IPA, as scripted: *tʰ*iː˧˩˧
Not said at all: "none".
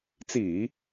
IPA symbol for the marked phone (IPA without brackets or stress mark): t͡s